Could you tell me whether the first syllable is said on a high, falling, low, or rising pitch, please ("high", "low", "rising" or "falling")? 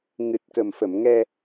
low